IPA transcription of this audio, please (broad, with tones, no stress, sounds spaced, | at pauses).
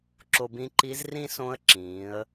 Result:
ǁ o˧ b ĩ˧˥ ǃ i˧˥ z r ĩ˥ s õ˧˥ ə̯ ǁ ĩː˩˧ ə̯